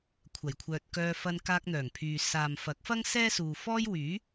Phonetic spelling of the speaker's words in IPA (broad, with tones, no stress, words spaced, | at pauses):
kʷʰɐ˨˩jkʷʰœː˨t̚kœː˧ fɐ˧nkaː˧k̚n̪œː˨˩ŋpʰyː˨ saː˨mfɐ˨˥k̚fɐ˥ŋ sɛː˥suː˨fɔː˥j wyː˨˥